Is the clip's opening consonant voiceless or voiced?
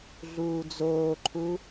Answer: voiced